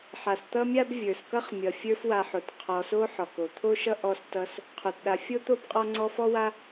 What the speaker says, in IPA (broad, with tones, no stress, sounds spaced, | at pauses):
ħ a˩ s t̪ ʌ˥ mʲ a˥ b vʲ ə˞˩ s k ʌ˥ χ mʲ ʌ˩ fʲ ə˞˦ f w a˨ ħ o˩ t qʰ ɔ˨ s o˦ ħ ɔ˩ k o˩ t̪ʰ o˥ ʃ ʌ˥ ʔ ɔ˦ s t ʌ˦ s | qʰ o˩ t ɗ a˨ fʲ o˥ t̪ o˥ b qʼ ɔ˦ ŋ͡ǀ ɔ˦ f ɔ˥ w a˥